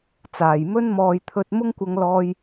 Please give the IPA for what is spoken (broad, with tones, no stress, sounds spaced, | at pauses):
t͡s aː˨ j m ɵ˥ n m ɔː˧ j t̪ʰ ɵ˧ t̚ m ʊ˥ ŋ kʷ ɐ˧ ŋ l ɔː˧ j